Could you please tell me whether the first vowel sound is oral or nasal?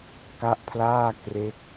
oral